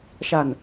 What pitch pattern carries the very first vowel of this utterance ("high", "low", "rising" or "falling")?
low